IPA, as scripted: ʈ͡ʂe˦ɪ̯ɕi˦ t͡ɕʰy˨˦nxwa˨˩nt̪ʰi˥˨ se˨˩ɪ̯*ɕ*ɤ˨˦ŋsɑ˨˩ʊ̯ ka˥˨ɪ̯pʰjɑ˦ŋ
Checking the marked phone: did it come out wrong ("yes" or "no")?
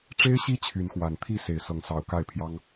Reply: yes